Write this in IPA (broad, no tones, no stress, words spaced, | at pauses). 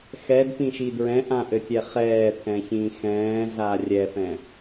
xɛdpĩʃi dɹɛ̃ʔãʔɘtʲɛ χɛːt̪ʰɛ̃çĩː xɛ̃ːɮa rʲɛfɛ̃